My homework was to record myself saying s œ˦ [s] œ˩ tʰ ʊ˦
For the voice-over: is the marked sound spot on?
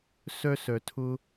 yes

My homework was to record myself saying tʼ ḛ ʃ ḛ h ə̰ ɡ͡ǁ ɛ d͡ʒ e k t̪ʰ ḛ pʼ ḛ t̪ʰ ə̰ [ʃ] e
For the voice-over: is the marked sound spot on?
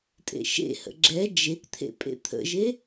no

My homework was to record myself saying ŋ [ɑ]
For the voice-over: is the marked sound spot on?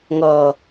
no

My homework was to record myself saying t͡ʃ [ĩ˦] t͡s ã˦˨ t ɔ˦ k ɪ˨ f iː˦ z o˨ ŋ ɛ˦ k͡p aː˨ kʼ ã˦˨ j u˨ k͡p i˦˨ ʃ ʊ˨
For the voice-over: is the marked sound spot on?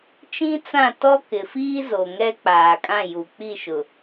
yes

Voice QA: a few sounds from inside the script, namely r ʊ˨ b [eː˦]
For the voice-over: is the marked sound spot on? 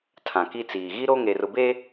no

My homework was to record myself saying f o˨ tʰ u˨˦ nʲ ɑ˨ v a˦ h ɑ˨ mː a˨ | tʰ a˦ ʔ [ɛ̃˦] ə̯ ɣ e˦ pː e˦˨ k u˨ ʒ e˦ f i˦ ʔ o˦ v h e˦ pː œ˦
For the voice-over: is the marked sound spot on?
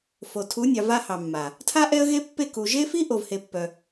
no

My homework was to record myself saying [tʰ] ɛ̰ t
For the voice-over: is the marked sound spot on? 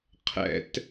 no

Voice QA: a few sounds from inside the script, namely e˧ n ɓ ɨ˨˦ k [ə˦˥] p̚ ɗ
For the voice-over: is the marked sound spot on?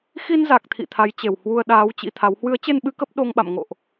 yes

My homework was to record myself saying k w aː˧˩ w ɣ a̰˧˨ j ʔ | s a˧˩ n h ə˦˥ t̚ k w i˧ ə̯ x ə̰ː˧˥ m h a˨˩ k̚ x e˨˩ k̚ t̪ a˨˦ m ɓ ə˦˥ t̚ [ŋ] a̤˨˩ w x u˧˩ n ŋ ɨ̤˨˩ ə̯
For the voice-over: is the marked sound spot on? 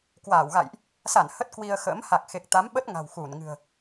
yes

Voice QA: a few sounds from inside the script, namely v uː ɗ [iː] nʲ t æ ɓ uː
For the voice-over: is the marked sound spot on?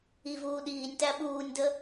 yes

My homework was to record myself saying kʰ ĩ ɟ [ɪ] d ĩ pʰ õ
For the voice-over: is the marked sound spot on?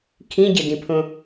yes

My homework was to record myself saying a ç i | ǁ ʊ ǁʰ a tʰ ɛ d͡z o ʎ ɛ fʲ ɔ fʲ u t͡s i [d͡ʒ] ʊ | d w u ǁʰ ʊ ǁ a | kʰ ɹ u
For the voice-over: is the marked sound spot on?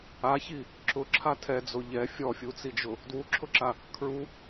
yes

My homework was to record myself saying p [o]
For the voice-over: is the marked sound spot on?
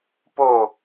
yes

